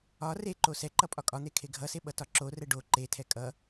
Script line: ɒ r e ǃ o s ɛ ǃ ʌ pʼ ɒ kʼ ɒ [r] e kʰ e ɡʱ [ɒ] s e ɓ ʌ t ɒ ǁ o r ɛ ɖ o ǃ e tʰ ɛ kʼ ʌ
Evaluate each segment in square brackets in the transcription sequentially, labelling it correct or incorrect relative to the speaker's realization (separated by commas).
incorrect, incorrect